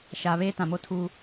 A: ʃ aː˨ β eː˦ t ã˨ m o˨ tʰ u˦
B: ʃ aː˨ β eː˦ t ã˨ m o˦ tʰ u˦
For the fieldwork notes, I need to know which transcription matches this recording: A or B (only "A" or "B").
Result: B